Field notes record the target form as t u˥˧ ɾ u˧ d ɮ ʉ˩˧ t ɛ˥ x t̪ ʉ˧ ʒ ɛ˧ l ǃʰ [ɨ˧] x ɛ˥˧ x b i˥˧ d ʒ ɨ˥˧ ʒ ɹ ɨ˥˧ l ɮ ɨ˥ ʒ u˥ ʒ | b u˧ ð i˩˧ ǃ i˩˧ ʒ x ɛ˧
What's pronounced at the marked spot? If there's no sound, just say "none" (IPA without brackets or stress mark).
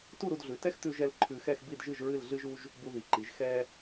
ʉ˧